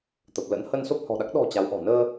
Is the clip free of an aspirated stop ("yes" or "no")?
yes